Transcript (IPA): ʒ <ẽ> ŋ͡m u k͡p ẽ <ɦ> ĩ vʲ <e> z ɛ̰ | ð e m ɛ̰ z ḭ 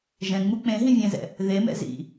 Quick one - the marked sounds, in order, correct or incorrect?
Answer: incorrect, correct, incorrect

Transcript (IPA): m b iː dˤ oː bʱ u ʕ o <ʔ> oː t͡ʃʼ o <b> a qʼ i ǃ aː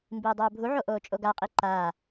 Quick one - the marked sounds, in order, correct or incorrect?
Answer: correct, incorrect

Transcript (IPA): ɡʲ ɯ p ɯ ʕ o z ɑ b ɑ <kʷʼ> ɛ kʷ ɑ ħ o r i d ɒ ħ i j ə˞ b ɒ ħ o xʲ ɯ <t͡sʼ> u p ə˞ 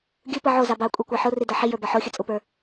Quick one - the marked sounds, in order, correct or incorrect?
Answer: correct, correct

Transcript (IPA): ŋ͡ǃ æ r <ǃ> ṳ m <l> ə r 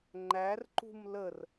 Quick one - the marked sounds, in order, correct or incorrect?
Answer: correct, correct

